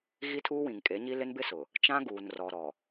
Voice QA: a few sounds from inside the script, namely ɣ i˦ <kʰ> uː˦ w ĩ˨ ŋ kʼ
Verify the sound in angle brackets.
incorrect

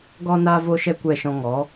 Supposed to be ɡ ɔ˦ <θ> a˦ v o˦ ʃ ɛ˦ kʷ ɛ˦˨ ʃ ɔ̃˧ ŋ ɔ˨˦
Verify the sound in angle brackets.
incorrect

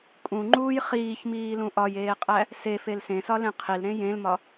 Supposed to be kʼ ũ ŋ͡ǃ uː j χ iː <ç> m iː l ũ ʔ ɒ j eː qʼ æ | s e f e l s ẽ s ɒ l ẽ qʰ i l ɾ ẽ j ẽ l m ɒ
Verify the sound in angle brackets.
correct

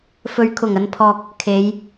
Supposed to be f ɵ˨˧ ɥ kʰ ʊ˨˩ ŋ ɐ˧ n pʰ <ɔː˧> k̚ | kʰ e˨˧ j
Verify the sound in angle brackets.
correct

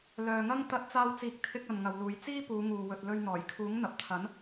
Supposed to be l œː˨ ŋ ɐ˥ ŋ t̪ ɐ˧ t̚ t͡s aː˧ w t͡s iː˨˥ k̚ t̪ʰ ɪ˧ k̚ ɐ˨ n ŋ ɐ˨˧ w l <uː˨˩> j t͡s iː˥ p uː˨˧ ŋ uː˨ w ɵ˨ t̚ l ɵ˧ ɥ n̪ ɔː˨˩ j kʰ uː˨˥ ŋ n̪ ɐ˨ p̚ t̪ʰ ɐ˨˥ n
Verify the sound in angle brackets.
incorrect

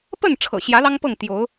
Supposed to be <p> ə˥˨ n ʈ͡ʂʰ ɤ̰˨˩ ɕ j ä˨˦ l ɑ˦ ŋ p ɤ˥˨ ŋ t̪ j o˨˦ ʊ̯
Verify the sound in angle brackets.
correct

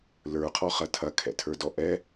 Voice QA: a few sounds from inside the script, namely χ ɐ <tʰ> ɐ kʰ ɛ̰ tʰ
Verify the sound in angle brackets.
correct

